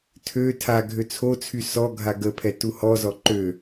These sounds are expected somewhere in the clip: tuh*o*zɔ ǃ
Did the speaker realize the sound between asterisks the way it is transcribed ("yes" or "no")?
no